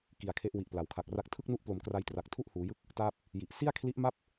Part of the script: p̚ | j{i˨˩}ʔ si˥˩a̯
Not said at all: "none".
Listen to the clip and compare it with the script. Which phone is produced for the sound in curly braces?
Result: i˨˩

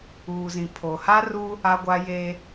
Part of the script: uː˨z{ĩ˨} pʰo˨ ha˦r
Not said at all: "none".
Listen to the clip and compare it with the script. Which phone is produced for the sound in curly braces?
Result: ĩ˨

